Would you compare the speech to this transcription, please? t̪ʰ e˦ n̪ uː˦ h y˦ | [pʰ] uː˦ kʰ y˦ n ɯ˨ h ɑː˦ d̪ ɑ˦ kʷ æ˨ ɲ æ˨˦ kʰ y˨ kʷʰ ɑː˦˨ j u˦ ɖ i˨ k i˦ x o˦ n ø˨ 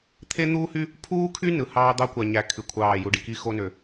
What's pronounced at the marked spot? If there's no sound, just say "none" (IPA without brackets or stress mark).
pʰ